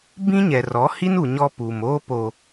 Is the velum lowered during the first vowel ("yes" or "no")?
yes